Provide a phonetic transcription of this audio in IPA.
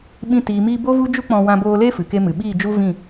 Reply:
ɓ ĩ˧ t iː˨ m iː˧ b o˦ v u˦ d͡ʒ u˦ k͡p ɔ̃˧ w ã˧ b oː˧ l e˦ f ɨ˨ k e˦ m ɨ˨ ɓ iː˦˨ d͡ʒ u˦ v ĩ˦˨

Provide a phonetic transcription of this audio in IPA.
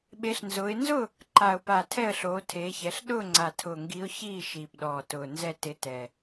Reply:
ɓ e˨˦ ɬ n z ʊː˨˦ ɪ̯ n z ʊ˥˨ | ǃ a˨˩ ʊ̯ p a˨˩ tʰ ɛ˥˨ ə̯ ɬ oː˨˦ tʰ eː˨˦ ç ɛ˨˦ ɬ ɗ ʊː˥˨ ŋ͡ǀ a˨˩ tʰ ʊː˨˩ ŋ ɡ i˨˦ ʊ̯ ç iː˥˨ ʃ iː˨˩ p ɗ ɔː˨˩ t ʊː˨˩ n z ɛ˥˨ t ɪ˨˦ t ɛ˨˩

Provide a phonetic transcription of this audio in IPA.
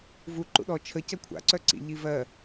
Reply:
v u ǃ ṵ ɗ ɔ t͡ʃʰ ə c ɜ kʷʰ a̰ ǀ œ ǀ ḭ ʎ i v ɜ

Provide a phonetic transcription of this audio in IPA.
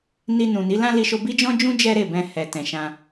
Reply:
n i˧ n ũ˨ n i˨˦ l ã˦ l i˧ ʃ o˧ b i˦ d͡ʒ ɔ̃˦ d͡ʒ ũ˦ d͡ʒ ɛ˦ ɾ e˦˨ b ɛ̃˧ h ɛ˨ t ɛ̃˨ ʃ ã˧

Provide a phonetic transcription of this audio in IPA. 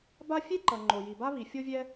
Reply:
b a˥ fʲ e˥ ǃ ʌ˩ ŋ͡ǃ o˩ j i˩ b a˥ β i˩ fʲ o˥ vʲ ɛ˥

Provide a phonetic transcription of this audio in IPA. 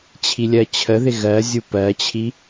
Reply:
t͡ɕʰ i lʲ ɜ t͡ɕʰ ə ð ɪ ɣ ɜ zʲ u p ɜ t͡ɕʰ i

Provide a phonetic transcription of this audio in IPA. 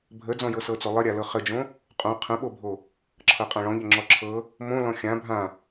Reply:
bʱ ə d͡z ɔ̃ j ɤ s ɤ t͡s o lˠ ə ɾʲ a l ɤ χ ə d͡ʒ õ | qʼ õ qʰ ə̃ ɓ o bʱ o | ǁʰ ɤ qʼ ã ɭ ɔ̃ ʎ ə ŋ͡ǁ ɔ ǁʰ ɤ | m õ l ɔ̃ xʲ ã bʱ ã

